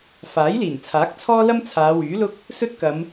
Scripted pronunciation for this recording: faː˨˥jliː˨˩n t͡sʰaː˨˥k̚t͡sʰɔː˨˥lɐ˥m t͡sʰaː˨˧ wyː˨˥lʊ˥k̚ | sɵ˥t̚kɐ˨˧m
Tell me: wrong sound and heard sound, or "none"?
ɔː˨˥ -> ɔː˥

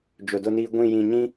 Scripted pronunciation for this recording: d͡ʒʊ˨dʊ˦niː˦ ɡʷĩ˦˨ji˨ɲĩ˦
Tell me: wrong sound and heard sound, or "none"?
i˨ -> ĩ˨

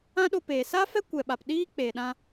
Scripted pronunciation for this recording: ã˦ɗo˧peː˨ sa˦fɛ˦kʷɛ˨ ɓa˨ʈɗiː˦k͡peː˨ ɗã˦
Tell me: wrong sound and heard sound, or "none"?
ʈ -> p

